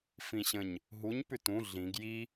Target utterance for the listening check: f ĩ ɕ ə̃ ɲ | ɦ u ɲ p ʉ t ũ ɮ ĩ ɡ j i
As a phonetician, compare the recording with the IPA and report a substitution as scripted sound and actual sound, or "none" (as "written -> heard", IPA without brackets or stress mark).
none